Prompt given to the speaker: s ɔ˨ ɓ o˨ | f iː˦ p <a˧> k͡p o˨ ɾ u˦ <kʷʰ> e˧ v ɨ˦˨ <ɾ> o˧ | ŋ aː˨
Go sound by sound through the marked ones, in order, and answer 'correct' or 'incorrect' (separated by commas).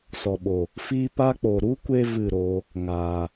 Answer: correct, incorrect, correct